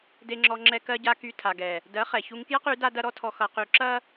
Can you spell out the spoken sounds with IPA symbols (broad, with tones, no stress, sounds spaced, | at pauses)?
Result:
d e˧ ŋ͡ǁ ɔ˧ ŋ͡ǁ ɛ˧ k ɜ˧ ɟ a˧ k y˧ tʰ a˨ ɡ ɛ˨ | d ɜ˨˦ χ ɛ˨ ç u˧ ŋ k j ɐ˦ q y˨˦ d a˦ d ɐ˦ ɾ ɔ˦ tʰ ɔ˧ x ʌ˧ q y˧ ǁ ɐ˦